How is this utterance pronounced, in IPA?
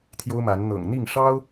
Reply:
t̪ʰ j o˦ ʊ̯ m a˨˦ n n̪ ɤ̰˨˩ ŋ n̪ i˥˨ ŋ ʂ ɑ˦ ʊ̯

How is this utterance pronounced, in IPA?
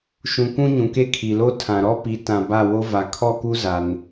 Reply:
ʃ ũ˨ kʷ ũ˦ ɲ ũ˨ k e˦ kʰ i˨ l o˦ tʰ ã˨ ɾ ɔ˦ p i˨˦ t ã˨ b a˦˨ w o˦ v a˨ kʰ ɔ˦˨ k u˦ z a˨ n

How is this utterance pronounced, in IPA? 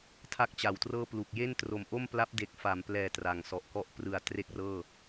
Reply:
tʰ a˥˩ k̚ t͡ɕ a˨˩ w t r ɤː˥˩ p l u˨˩ k̚ j e˥˩ n t r o˨˩ m ʔ o˥˩ m p l a˦˥ p̚ d e˨˩ k̚ f a˩˦ m p l ɛː˨˩ t r a˨˩ ŋ s ɔ˨˩ ʔ k ɔ˥˩ ʔ p r ɯ˨˩ a̯ t r e˥˩ k̚ r ɤː˥˩

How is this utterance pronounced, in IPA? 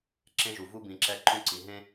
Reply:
ǁ ẽ˦ ʒ u˨ v u˦ b ĩ˨ ǁ ɛ˦ ǃ ũ˦ ǀ i˨ ɦ ẽ˦

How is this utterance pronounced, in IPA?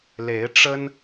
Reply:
l e˨˦ ɪ̯ ʈ͡ʂ ə˦ n

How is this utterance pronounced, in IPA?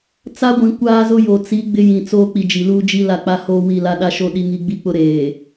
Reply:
t͡s a˦ ɡʷ ĩ˨ kʷ aː˦ z ʊ˦ j o˨ t͡s i˨˦ ɡ͡b ɪ˦ j ĩ˨ t͡s oː˦ k͡p i˨ d͡ʒ i˨ l uː˦ d͡ʒ i˦ l a˦˨ k͡p a˦ h oː˦ w i˦˨ l a˦ ɗ a˦ ʃ o˦ ɗ i˦ ŋ i˦ ɡ͡b i˦ k͡p ʊ˦ ɾ eː˨

